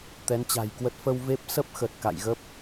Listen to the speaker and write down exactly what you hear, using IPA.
t̪ ɛ˨˦ n t͡ɕ a̤˨˩ j k w ə˦˥ t̚ f ə˧ w v e˦˥ p̚ s ə˦˥ p̚ x ə˨˩ t̚ k a̰˧˨ j ɣ ə˦˥ p̚

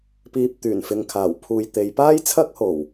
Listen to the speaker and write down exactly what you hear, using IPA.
p iː˨ p̚ t̪ yː˨˩ n f ɪ˨ ŋ kʰ aː˨˩ w pʰ uː˨ j t̪ e˨˧ j p aː˥ j t͡sʰ ɐ˥ k̚ h o˨˩ w

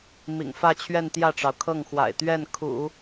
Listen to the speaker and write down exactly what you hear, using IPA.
m ḭ˨˩ ŋ f ä˥˧ t͡ɕʰ ɥ ɛ˥˧ n t̪ j ä˥˩ ʈ͡ʂ ɑ˩ ʊ̯ kʰ ɤ˥˩ ŋ x w a̰˨˩ ɪ̯ t̪ ɥ ɛ˥˩ n kʰ ṵ˨˩˦

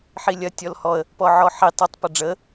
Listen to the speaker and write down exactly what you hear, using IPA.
ħ i lʲ ɐ tʲ ɔ l h ɔ ə̯ | p ɔ ʕ ɔ ħ i tˤ ɐ tˤ p ɐ ɖ͡ʐ ə

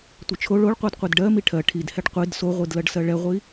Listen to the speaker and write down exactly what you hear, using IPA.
tʷ ɛ t͡ʃʰ o ɭ o ɭ qʷ ɜ d qʷ i d ɖ ɜ m i ʈʰ ɜ ʈʰ i d h ɛ ɖ qʷ i d s o ʁʷ i d l ɜ ɖ s ɜ ɭ ɛ ʁʷ i

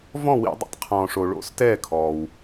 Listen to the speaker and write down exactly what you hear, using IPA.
v ɔ̃˥˨ w ḭ˧˩˧ dˤ ḭ˩ tˤ qʰ ɔ̃ː˩ ʂ o˩ ɭ o̰˥˨ s t ɛː˥˨ kʰ ɔː˩ w

